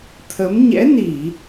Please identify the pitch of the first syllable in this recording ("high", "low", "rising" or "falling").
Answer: rising